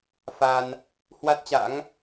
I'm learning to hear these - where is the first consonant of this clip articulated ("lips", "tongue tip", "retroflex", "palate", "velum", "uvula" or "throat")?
lips